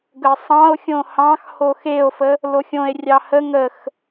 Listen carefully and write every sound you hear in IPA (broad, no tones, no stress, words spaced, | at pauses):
ɡəsˤɑ̃o̯xʲõ hɑ̃xho xeo̯fə | loxʲõe̯rʲɑ hə ŋəx